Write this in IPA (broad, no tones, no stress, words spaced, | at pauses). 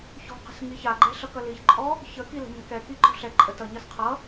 çɔ̤qə̤s ŋiçaɡ͡ǃɛ ɬʌkʌliçǃʼɔ | çəki lə̤ɲa̤kɛki ǃɔ̤ɬɛǃʼə tʌɲʌs qʰʌ